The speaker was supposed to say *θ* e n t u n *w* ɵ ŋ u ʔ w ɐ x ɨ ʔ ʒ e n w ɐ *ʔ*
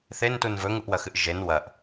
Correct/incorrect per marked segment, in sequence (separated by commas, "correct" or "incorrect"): correct, incorrect, correct